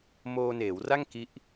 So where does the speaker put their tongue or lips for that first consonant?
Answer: lips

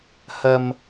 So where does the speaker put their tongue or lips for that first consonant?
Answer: throat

